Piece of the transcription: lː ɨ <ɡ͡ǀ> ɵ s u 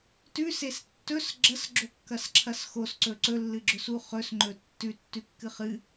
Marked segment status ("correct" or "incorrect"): incorrect